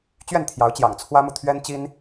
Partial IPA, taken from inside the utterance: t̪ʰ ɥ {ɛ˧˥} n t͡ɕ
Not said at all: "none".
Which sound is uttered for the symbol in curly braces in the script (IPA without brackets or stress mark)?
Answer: ɛ˥